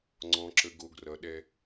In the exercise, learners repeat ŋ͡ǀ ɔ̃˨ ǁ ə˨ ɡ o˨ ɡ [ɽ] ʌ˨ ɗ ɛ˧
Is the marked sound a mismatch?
yes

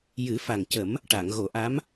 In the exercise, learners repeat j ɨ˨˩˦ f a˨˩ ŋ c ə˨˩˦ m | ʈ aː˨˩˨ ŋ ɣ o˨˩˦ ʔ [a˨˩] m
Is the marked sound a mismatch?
yes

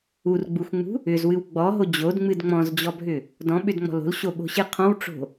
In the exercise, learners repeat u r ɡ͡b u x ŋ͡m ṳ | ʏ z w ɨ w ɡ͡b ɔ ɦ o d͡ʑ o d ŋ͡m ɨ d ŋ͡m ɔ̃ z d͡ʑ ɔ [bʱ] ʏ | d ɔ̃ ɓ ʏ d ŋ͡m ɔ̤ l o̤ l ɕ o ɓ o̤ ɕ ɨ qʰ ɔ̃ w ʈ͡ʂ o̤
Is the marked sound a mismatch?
no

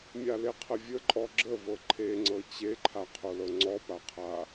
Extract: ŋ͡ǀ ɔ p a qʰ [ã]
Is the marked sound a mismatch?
yes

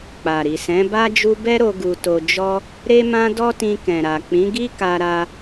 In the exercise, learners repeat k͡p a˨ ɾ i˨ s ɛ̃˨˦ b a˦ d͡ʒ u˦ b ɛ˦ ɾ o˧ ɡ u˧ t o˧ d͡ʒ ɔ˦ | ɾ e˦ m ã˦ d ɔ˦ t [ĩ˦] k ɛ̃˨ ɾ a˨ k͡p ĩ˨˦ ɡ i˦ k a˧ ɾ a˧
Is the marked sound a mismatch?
yes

